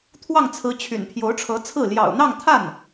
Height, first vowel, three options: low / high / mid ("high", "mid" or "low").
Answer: low